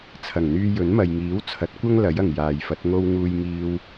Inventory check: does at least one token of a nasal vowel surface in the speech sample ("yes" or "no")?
no